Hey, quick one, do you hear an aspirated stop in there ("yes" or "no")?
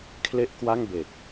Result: yes